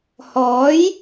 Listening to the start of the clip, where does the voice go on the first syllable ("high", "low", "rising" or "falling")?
rising